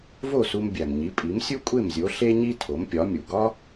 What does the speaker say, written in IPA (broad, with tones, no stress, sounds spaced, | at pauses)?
v o˥˩ s u˧ m bʲ æ˩ m ɲ i˩˥ pʼ i˩˥ m sʲ u˥ kʷʼ e˥˩ m zʲ o˩˥ ɬ e˥ ɲ i˥ tʰ o˩˥ m pʲ ɒ˩˥ mʲ u˩ ɡ ɒ˥